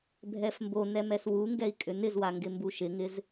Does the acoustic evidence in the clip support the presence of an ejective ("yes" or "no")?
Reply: yes